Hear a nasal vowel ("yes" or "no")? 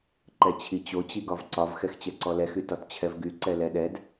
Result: no